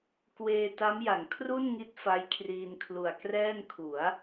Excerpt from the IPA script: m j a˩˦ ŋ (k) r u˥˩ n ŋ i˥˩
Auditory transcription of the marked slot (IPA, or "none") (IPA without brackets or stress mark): kʰ